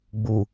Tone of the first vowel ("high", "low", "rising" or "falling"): low